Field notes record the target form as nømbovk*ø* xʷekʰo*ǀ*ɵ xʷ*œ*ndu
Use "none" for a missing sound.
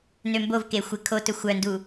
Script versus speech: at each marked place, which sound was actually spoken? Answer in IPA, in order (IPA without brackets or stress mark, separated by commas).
e, t, œ